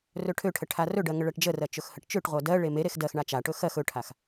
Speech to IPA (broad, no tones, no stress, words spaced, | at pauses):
rɵʈʰøʈʰə ʈʰarɵɖɜ ŋəɭɜʈd͡ʒərɜ t͡ʃɵxhəʈt͡ʃøʈʁʷɜ dɜɭe meɾex dɜxɳa t͡ʃaʈɵ xɜx ɵʈʰax